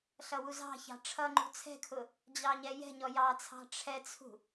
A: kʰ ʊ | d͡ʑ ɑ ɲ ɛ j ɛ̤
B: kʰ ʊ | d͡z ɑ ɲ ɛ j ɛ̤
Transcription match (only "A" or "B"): A